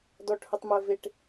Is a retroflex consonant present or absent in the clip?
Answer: present